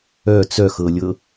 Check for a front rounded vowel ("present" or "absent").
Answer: present